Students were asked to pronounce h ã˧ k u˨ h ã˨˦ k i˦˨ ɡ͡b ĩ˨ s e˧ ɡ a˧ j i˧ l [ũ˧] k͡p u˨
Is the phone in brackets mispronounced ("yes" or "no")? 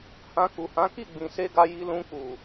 no